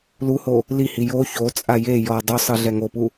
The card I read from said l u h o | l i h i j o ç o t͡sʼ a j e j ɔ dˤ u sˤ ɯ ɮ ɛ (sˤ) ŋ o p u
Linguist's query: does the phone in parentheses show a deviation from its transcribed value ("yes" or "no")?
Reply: yes